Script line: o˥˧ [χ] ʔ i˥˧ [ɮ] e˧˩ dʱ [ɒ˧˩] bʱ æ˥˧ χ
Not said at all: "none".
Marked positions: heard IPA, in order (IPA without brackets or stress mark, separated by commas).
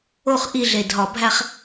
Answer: χ, ɮ, ɒ˧˩